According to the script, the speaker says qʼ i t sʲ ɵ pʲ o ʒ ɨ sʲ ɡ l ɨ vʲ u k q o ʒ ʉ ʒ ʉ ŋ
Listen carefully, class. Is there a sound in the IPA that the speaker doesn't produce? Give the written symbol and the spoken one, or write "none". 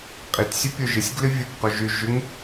none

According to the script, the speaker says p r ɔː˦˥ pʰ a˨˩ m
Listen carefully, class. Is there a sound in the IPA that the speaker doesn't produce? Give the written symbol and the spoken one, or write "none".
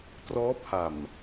p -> t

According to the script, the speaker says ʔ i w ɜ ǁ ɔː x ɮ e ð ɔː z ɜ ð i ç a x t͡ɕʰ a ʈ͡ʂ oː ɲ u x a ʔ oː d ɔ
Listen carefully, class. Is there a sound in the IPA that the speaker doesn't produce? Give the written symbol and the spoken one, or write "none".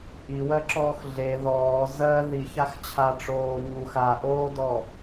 none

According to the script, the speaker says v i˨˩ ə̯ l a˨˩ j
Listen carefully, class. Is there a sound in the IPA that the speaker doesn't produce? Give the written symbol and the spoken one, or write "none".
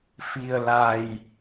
v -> f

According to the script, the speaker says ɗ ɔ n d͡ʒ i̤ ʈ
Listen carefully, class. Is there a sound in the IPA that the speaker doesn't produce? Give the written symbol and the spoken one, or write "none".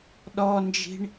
ʈ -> ɳ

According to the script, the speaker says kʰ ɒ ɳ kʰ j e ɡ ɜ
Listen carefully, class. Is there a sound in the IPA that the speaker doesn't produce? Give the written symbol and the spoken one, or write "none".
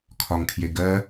ɳ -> ŋ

